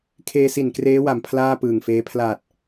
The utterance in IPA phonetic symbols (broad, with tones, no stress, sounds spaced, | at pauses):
kʰ eː˧ s i˨˩ n k r eː˦˥ w a˩˦ m pʰ l aː˥˩ p ɯː˨˩ ŋ f eː˦˥ pʰ l aː˨˩ t̚